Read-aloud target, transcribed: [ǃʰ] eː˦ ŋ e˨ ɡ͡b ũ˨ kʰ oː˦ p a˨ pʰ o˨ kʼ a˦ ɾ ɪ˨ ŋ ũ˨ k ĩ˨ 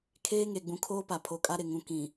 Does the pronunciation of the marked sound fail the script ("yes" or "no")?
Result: yes